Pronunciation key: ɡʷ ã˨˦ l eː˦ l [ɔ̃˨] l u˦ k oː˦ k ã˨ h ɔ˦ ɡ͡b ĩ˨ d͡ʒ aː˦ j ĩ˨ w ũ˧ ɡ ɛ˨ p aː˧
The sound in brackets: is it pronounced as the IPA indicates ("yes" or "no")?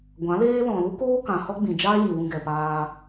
yes